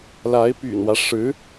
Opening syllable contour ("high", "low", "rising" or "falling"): rising